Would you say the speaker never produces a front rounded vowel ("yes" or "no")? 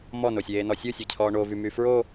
no